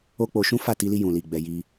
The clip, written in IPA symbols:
o˦ k͡p o˧ ʃ ũ˦ f a˦˨ t i˧ l i˧ j ũ˨ l i˨ ɡ͡b ɛ˧ j i˧

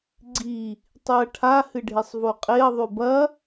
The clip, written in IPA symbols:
ɡ͡ǀ i | tˤ ʉ ɐ̯ ʈʰ a h ɨ ɖʱ e sˤ v o qʼ e ɐ̯ ðˤ ʉ b ɐ

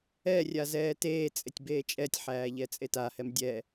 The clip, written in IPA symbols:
ɛ rʲ a z ɛː t eː t͡sʼ e tʲ b eː t͡ʃʼ ɛ tʲ ħ æː ʎ ɛ t͡sʼ e t a h ɛ m dʲ ɛ

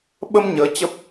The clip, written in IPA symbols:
ɓ ə˧ m ɲ əː˨˦ t͡ɕ ə˦˥ p̚

